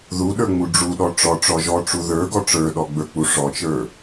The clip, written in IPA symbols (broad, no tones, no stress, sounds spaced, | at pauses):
ð u ɗ ə˞ ŋ͡m u ɖ͡ʐ u ɗ ɔ ʈ͡ʂ ɔ ʈ͡ʂ ɔ ʒ ɔ ʈ͡ʂ u ð ə˞ ɡ ɔ ʈ͡ʂ ə˞ ɗ ɔ ɡ͡b ə˞ k͡p u ʂ ɔ t͡ʃ ə˞